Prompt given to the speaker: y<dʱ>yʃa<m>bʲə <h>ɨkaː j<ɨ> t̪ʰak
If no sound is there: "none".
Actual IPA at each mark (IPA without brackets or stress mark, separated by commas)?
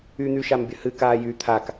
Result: n̪, m, h, y